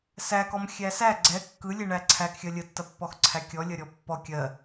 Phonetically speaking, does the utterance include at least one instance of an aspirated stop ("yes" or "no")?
yes